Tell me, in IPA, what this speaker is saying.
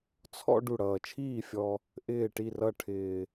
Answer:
t͡sʰ ɔ̰˧ ɖ u˧˩ ɽ ʌː˧˩ t͡ʃʰ iː˥˩ fʲ ɔ˧ | ʔ ɪː˧˩ ʈ i˧˩ r ʌ˧˩ ʈʰ ɪː˧

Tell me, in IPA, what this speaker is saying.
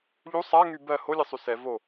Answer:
ʎ u sˤ a ŋ y b ɜ h o lʲ ɘ sˤ y s ɛ v o

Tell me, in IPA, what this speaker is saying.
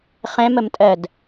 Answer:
χ ɛ̃ m ə m tʼ ɜ d

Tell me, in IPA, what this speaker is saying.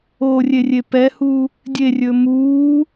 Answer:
o rʲ e rʲ e p ɛ h u | dʲ e rʲ ɵ m uː

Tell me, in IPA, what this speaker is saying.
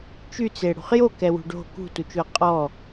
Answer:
t͡ʃ y t͡s e ɽ ṳ χ j o k ɛ w ṳ ɖ o̤ k ṳ t u t͡ʃ o ə̯ qʼ ɔ

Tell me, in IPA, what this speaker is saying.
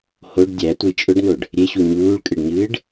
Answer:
h o ɖ dʲ æ tʷ ə j t͡ʃʼ ʊ ɖ n o ɖ | ɾʲ e ɕ u ɲ uː ɭ kʼ ɨ ɖ ɲ ɨː ɖ

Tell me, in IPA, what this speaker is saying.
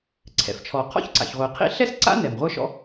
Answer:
ǀʰ ɛ̰˩ f t͡ʃʰ ɔ˩ qʰ ɔ̰˥ ç ǀ a̰˩ ç ʁʷ i˩ qʰ ḭ˥ ɬ ɛ˥ s ǀ a̰˥ n ɛ˩ m ʁʷ ə˞˥ ʃ ɔ̰˥

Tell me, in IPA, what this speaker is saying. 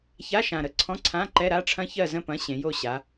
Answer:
ç a˧˥˧ ʃ ã˨˩ ɾ ə˧˥˧ ǀʰ ɔ̃˧˥˧ ǀʰ ã˧˥˧ ǃ ɛ˧˥˧ ɾ a˧˥˧ ʈ͡ʂʰ ɐ̃˦˥ ç ɜ˦˨ z ə̃˦˨ p ɐ̃˨˥ ɕ ẽ˩˧ j o˦˨ ɕ a˩˧

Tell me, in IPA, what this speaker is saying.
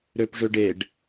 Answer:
ɾ ø p ʐ ø ɖ e ɖ

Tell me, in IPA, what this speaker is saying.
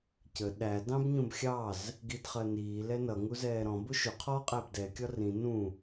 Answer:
c ə ɗ æ d ɑ̃ b ɲ ũ b xʲ ɑ z | ɡ i d χ ɜ n iː l ɛ n ʌ ŋ u z ɛː ɾ ɔ̃ b ʊ ʃ ʊ qʰ ɔː qʼ æ b d ɛ kʲ ɒ r ĩ n ũ

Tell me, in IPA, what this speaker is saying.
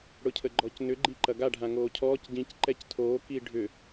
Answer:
ɽ ʊ cʰ ə ɡ͡ǃ ɔ c n ʏ ɡ͡ǃ i ǃ ɐ ɡ a ɖʱ ã ŋ oː cʰ ɔː c ɟ ĩ c ǃ ɛ c tʰ oː k i ɖʱ ʏ

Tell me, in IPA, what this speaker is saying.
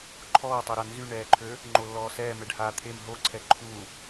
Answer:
ǃʰ ɔː tˤ œ ɾ a n z y ɳ ɛː ǃʰ ø | ŋ͡ǃ o lː ɔː s ɛː m ɛ ɖ h aː t̪ʰ e m ɦ o ǀʰ ɛ ǃʰ u

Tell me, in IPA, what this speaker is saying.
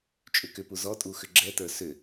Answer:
t͡ʃʼ ʏ k ʏ p u z ɔ tʼ u x ʏ ɡ͡ǁ ɛ t ə˞ s ʏ

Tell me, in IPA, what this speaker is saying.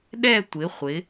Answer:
ɗ ɛ˥˧ tʷ ɪ˨˦ χʷ ɪ˨˦

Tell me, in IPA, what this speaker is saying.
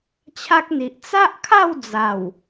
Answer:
t͡ɕʰ a˦ k̚ n̪ i˨ ʔ t͡s a˦ ʔ kʰ a˥˧ w d͡z a˨˩ w

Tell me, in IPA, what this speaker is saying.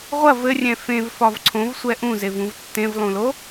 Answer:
ʁʷ ɐ v ɘ rʲ ɛ̃ f ẽ v f ɒ v ǀʰ õ v sʷ ɛ ʔ ũ z e v ũ v tː ẽ v lˠ ũ l o

